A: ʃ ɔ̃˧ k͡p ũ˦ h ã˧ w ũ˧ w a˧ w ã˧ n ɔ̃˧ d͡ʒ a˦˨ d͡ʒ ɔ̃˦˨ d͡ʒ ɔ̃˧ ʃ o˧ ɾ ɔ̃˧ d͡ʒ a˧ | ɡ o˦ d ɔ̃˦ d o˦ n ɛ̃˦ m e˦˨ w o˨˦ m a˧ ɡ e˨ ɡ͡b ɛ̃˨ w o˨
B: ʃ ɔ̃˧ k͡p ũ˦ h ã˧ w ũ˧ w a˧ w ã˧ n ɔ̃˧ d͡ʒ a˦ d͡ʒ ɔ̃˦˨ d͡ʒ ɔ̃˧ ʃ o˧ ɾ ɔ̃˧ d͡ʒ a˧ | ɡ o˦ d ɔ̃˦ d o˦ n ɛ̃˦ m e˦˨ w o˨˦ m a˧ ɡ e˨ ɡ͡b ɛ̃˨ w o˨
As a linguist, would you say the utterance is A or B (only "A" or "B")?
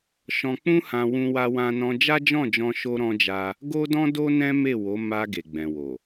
B